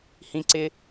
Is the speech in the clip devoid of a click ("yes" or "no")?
no